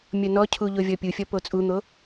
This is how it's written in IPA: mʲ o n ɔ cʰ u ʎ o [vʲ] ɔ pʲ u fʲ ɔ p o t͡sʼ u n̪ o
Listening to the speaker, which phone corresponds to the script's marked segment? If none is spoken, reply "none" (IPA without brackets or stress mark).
vʲ